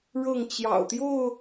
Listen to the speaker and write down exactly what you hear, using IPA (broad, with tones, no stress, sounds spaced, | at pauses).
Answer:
ɻ ɤ˥˨ ŋ t͡ɕ j ɑ̰˨˩ ʊ̯ t̪ j o˥˨ ʊ̯